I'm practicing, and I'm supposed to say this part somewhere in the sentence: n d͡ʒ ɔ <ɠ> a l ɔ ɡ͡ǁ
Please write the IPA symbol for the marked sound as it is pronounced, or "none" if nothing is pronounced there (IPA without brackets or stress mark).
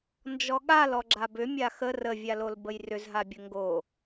ɠ